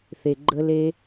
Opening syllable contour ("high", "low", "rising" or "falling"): low